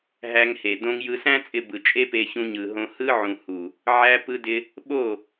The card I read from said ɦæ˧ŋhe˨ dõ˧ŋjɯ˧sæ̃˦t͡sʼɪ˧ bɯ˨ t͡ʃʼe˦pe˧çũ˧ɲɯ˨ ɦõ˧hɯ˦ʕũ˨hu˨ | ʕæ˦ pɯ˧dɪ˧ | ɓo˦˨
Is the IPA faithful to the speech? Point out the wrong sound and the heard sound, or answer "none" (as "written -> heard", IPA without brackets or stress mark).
none